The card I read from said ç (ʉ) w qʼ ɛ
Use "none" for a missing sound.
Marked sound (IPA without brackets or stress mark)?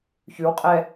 ʉ